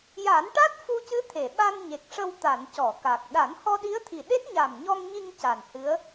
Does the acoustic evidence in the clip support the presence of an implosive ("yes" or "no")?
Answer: yes